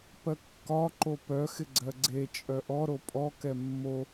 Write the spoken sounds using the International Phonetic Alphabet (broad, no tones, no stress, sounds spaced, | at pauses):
p ɜ kː ɒ ǃ o p œ x ɪ ɡ͡ǀ ɜ ɡ͡ǀ e t͡ʃʼ œ ʔ ɔ ɾ o pʼ ɔ k ɛ mː o